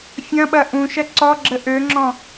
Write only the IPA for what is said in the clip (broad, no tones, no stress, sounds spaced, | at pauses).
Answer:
fʲ ɐ̃ ɓ ɐ ʔ ũ ʃ ɐ ǀ ɔ ɡ͡ǁ ə ʔ ø ŋ͡ǁ ɔ̃